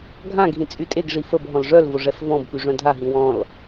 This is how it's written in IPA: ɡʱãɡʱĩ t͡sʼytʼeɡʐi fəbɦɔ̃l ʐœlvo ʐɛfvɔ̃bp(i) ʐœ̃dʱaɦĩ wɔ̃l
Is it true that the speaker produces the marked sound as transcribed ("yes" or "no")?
no